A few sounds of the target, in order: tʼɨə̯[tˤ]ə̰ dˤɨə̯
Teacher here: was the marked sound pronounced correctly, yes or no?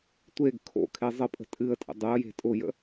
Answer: no